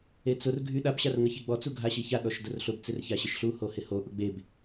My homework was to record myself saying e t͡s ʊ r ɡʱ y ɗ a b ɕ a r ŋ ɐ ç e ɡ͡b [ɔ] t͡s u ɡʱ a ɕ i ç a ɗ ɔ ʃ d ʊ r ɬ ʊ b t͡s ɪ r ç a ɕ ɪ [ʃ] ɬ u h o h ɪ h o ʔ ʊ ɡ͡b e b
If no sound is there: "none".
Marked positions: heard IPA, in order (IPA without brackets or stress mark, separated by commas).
ɔ, ʃ